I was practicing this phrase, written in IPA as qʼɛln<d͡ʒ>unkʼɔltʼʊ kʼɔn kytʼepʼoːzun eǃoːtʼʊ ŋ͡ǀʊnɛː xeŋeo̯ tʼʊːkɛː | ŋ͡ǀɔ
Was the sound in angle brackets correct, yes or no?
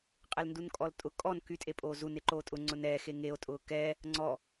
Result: no